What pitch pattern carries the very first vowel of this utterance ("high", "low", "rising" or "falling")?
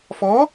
rising